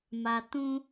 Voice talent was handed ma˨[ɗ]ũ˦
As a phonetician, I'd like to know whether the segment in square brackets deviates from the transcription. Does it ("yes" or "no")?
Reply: yes